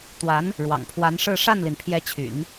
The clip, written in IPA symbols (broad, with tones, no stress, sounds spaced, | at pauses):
t̪ w a˧˥ n | ɻ w ɑ̰˨˩ ŋ pʰ w a˧˥ n ʂ ɻ̩˥˧ ʂ a˥˩ n l i˩ n pʰ j ɛ˧˥ t͡ɕʰ y̰˨˩˦ n